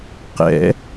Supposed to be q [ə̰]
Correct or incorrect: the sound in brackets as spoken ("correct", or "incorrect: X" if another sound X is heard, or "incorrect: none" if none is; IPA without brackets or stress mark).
incorrect: ɛ̰